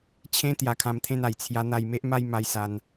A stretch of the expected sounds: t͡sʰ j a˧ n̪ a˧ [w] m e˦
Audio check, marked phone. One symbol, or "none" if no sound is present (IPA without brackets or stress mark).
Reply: j